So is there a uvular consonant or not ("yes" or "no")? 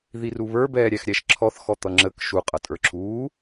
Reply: yes